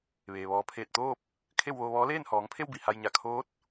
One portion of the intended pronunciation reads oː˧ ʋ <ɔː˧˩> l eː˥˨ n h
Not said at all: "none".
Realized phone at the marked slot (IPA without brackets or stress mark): ɔː˧˥